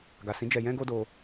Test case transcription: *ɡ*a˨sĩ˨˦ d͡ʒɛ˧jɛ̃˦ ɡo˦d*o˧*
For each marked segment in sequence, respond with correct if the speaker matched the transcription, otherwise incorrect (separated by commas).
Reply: correct, correct